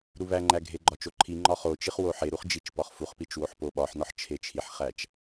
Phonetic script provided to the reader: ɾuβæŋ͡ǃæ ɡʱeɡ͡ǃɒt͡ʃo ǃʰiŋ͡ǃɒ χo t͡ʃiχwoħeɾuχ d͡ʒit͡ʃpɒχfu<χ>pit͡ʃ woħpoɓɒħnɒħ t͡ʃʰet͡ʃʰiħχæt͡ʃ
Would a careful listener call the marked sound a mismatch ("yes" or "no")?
no